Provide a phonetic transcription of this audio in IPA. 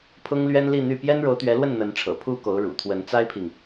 pʰ ʊ˥ ŋ l ɥ ɛ˥ n l i˥˧ n̪ y˥˩ p j ɛ˥ n ɻ o˧˥ ʊ̯ t̪ ɥ ɛ˧˥ l w ə˥˩ n n̪ ə˧˥ n ʈ͡ʂʰ ɤ̰˨˩ pʰ u˥ k o˧˥ ʊ̯ ɻ ṵ˨˩ t̪ʰ w ə˧˥ n t͡s a˥ ɪ̯ pʰ i˨ ŋ

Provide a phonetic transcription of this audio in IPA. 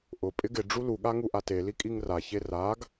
ʔ ʊ pʼ ɪ ɡ ɪ ɖ͡ʐ u l u ɠ a ŋ u ʔ a t e l i kʼ i ŋ r a ç e r a ɡ

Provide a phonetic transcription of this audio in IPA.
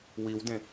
w i w d ẽ

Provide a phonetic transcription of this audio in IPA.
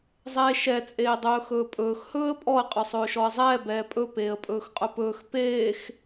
zˤ eː ʃ ɛ t͡sʼ eː dˤ ɵː x ɵː pʼ ɵː x h ɵː ə̯ pʼ ɔ ə̯ qʼ ɵ sˤ ɵː ʃ ɔ ə̯ zˤ ɛː b ɛː pʼ ɵ p eː ə̯ pʼ ɵː x qʼ ɵ p ɵː x p eː x

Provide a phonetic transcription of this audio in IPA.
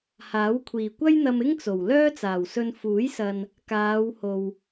h aː˨˥ w kʷʰ iː˨˩ kʷ ɐ˥ j n̪ ɐ˧ m ɪ˥ ŋ t͡s o˨˩ w l œː˥ t͡s aː˨˩ w s ɵ˧ n f uː˨˥ j s ɐ˨ n | k aː˨˧ w h o˨ w

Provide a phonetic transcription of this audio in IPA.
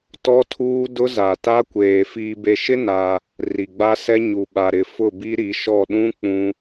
t ɔ˦ tʰ uː˦ d ʊ˦ z a˨ t a˦ kʷ eː˨ f iː˨ b e˨ ʃ ɪ˦ n a˦ | r i˨ ɡ͡b a˦ s ɛ˦ ɲ u˨ ɓ a˨ ɾ ɪ˨ f ʊ˦˨ b i˦ ɾ i˨˦ ʃ ɔ˦˨ ɗ ũ˦ k͡p ũ˦

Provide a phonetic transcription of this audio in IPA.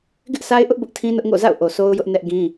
ɡ ɪ˦ ʔ sʰ a˦ ɪ̯ ʔ ʊ˦ ʔ b ʊ˦ ʔ tʰ ĩ˦ n ʊ˦ ʔ ŋ o̰˦˨ z a̰˦˨ ʊ̯ ʔ o˨ sʰ o˦ ʊ̯ j ʊ˦ ʔ n ɛ˦ ʔ ɡ ĩ˦

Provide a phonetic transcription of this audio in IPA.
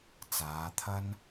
t͡s aː˨˧ t̪ʰ ɐ˥ n

